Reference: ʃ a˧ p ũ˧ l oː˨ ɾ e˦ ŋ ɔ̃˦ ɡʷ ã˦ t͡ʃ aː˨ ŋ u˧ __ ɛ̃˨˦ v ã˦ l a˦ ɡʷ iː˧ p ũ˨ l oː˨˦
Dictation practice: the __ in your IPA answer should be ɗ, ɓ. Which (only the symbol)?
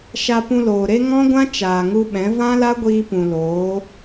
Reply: ɓ